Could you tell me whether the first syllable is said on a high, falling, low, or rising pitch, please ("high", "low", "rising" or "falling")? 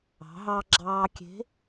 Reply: rising